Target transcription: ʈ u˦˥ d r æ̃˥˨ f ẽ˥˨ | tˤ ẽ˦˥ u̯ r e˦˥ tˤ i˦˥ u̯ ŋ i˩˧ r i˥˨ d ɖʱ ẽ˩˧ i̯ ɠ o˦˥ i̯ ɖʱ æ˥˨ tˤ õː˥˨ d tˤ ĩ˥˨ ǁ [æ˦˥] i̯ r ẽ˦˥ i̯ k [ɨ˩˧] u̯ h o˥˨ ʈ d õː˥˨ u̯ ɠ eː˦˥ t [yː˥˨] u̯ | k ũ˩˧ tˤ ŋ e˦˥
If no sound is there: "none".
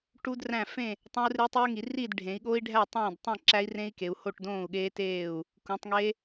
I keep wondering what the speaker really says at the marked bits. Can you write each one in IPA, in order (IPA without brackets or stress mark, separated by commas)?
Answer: æ˦˥, e˩˧, eː˥˨